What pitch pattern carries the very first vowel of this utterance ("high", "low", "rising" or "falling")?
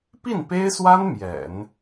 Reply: falling